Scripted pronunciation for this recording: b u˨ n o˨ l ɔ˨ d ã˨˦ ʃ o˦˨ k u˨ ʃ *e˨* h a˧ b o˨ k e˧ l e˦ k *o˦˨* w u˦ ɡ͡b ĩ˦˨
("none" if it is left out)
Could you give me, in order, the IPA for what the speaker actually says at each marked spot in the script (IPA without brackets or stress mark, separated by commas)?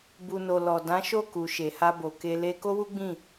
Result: e˨, o˦